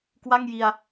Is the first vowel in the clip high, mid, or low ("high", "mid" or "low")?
low